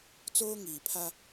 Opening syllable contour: high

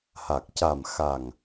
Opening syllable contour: low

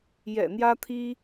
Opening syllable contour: low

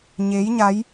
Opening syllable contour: rising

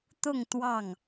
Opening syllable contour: falling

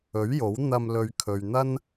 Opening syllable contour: rising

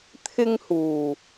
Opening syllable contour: high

